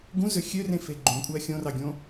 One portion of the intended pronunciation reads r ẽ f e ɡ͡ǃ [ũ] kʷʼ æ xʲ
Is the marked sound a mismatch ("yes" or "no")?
no